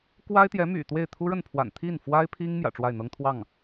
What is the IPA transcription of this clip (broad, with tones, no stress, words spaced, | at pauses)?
kwa˥ɪ̯t̪jɛ˧˥ my̰˨˩t̪we˥˩ɪ̯ t̪ʰu˥ɻə˥˩npʰwa̰˨˩n t̪ʰi˥˩nfwa˥ɪ̯pʰi˥ŋ mjä̰˨˩ʈ͡ʂwa˥˩ɪ̯n̪ɤ˥ŋ t̪ʰwɑ˥˩ŋ